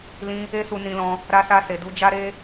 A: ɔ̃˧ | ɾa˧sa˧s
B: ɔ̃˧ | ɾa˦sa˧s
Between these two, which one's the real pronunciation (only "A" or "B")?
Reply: A